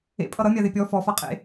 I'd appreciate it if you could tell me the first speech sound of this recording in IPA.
ḛ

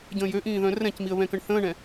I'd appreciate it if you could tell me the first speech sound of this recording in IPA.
ɟ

